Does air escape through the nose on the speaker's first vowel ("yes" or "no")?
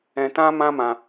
yes